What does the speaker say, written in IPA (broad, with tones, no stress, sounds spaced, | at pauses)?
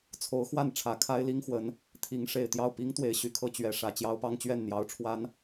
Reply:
t͡sʰ o˧˥ ʊ̯ x w a˥˩ n ʈ͡ʂʰ ä˨˩ kʰ a˥ ɪ̯ l i˥ ŋ x w ə˧˥ n | t̪ʰ i˧˥ ŋ ʂ e˨˩ ɪ̯ t̪ j ɑ˥˩ ʊ̯ p i˥ ŋ t̪ w e˧˥ ɪ̯ ɕ y˨˩ kʰ ɤ˥˩ t͡ɕ ɥ ɛ˧˥ ʂ ä˨˩ t͡ɕ j ɑ˥ ʊ̯ p ɑ˥ ŋ t͡ɕ ɥ ɛ˥˩ n n̪ j ɑ˧˥ ʊ̯ ʈ͡ʂʰ w a˧˥ n